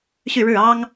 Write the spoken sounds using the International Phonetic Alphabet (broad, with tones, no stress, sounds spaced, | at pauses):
ɕ y˥˧ ɻ ɻ̩˥˩ ɑ˥ ŋ